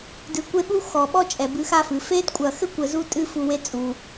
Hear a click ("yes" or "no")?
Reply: no